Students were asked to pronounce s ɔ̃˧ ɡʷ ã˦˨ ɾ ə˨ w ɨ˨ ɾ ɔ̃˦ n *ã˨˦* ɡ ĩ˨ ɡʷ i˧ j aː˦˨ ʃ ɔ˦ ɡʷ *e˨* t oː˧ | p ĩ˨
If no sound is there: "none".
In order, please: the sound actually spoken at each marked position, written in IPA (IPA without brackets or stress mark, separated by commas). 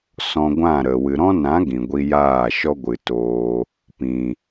ã˨˦, ɨ˨